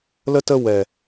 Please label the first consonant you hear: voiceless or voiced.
voiced